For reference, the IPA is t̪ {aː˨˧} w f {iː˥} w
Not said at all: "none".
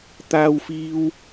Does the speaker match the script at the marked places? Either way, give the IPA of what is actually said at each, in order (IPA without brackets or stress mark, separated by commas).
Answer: aː˥, iː˥